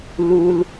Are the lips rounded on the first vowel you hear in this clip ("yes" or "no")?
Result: yes